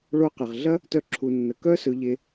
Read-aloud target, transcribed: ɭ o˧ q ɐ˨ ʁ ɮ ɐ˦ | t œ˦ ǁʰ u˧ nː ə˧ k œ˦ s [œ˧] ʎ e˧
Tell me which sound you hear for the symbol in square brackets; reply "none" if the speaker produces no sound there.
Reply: ɵ˧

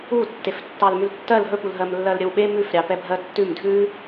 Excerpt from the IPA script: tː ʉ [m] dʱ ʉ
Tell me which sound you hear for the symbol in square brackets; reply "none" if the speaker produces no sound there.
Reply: m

